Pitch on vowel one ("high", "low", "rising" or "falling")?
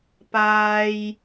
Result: high